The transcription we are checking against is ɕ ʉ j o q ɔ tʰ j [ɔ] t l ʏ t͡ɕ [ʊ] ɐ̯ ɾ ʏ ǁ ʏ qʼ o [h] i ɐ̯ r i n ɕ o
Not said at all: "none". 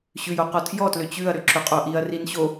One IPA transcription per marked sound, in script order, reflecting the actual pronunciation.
ɔ, ʉ, ʔ

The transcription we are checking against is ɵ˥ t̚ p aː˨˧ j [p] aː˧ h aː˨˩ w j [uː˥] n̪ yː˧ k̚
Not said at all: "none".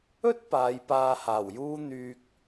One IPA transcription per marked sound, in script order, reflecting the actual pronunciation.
p, uː˥

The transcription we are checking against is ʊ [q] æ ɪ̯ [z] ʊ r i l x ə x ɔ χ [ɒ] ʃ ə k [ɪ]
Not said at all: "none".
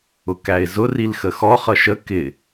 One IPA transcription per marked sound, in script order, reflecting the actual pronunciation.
k, z, ʌ, ɪ

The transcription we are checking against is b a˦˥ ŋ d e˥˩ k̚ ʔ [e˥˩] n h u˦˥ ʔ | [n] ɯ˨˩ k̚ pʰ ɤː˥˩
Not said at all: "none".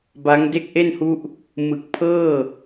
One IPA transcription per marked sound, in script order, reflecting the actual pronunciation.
e˥˩, m

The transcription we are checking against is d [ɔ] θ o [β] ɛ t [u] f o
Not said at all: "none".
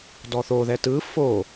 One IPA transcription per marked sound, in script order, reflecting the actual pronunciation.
ɔ, ð, ɯ

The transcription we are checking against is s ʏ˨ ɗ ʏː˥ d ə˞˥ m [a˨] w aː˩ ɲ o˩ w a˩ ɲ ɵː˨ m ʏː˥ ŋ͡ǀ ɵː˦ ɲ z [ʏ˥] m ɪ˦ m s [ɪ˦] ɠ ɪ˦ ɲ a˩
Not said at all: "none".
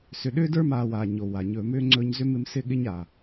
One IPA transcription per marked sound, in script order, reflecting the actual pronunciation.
aː˨, ʏ˥, ɪ˦

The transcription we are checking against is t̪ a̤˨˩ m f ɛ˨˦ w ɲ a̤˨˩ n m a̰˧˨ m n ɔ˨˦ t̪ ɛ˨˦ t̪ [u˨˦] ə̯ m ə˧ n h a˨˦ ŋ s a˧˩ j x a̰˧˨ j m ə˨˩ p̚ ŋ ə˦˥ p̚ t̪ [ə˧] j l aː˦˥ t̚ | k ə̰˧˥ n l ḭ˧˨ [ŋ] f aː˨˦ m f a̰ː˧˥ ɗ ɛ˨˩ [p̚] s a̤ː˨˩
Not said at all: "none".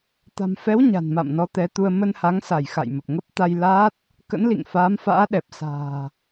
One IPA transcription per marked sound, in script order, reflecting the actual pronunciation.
u˧, a˧, ŋ, p̚

